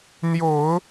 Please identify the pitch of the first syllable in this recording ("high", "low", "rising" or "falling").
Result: low